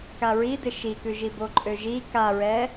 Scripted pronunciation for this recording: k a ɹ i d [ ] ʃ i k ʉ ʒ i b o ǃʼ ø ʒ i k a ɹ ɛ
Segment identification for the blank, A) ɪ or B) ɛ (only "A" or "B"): A